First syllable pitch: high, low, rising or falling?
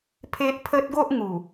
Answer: high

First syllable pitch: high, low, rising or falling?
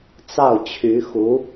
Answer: falling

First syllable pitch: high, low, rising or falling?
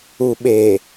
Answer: low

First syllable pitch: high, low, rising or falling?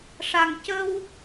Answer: low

